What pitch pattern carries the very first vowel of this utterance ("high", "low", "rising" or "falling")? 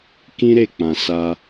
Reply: high